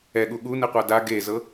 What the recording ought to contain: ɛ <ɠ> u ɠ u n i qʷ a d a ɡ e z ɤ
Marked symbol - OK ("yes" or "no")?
yes